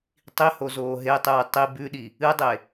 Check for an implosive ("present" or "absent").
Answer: present